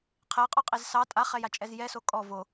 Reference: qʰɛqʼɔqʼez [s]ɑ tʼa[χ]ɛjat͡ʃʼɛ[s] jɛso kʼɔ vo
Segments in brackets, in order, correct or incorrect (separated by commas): correct, correct, incorrect